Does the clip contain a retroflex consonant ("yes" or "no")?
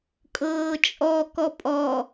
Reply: no